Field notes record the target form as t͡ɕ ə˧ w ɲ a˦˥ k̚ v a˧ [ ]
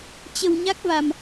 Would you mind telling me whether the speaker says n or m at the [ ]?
m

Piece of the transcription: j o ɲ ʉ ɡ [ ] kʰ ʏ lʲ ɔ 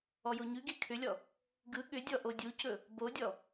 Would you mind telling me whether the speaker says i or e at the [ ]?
e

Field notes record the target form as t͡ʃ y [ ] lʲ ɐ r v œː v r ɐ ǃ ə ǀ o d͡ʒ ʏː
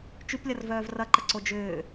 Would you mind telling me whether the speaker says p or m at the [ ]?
p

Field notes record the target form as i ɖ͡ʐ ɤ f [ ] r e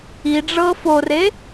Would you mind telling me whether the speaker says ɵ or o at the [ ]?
o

